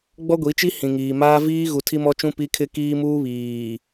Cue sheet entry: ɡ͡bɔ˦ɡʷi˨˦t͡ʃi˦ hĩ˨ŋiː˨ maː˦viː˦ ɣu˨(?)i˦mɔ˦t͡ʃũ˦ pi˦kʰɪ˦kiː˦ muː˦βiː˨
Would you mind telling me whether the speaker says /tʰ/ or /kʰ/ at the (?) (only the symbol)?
tʰ